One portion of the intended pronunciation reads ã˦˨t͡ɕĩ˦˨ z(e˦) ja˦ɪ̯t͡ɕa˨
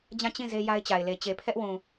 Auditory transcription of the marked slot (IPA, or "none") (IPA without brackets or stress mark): e˦